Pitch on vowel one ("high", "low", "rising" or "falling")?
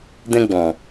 high